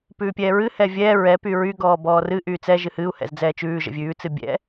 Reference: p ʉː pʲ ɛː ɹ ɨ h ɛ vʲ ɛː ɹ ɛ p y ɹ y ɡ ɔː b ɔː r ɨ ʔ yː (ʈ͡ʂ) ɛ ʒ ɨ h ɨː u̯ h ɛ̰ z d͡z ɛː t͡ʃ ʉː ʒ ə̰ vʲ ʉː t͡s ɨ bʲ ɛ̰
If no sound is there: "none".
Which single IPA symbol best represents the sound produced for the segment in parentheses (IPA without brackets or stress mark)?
t͡s